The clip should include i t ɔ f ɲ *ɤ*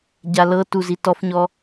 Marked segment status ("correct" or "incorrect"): incorrect